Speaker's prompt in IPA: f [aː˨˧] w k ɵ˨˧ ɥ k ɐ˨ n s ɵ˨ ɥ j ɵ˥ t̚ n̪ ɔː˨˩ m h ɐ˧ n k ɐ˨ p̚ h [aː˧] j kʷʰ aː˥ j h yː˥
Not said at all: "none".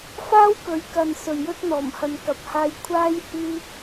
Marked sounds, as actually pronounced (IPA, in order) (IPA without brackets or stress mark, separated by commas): aː˥, aː˧